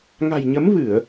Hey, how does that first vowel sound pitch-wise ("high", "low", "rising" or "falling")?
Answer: low